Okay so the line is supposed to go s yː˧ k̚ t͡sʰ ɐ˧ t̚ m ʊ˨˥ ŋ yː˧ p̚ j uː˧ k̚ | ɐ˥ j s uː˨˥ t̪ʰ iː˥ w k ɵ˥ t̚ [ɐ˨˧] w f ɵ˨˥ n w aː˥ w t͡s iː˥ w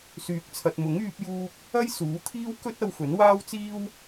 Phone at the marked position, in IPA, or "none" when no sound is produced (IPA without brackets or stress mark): ɐ˧